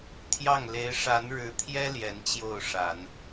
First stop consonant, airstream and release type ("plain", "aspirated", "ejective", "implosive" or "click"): aspirated